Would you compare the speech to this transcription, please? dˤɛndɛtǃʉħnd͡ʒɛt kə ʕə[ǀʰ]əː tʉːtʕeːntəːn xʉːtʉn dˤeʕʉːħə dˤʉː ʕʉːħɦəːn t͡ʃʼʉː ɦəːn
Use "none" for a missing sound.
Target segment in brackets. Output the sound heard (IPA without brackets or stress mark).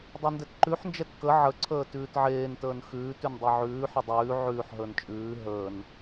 ǀʰ